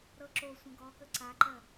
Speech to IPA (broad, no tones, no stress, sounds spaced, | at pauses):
ɾ ɤ ǁ o sʷ ə̃ ɡ ɔ k ə ǀ a ǃ ɜ